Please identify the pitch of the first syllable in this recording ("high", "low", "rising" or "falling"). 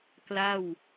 falling